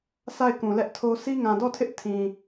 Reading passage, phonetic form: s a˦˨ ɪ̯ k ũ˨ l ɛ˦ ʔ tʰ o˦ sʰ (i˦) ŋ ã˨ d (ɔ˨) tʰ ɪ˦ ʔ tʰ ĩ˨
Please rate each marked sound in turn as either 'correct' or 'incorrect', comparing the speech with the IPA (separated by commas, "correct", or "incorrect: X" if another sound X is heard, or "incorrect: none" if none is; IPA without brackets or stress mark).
correct, incorrect: ɔ˦˨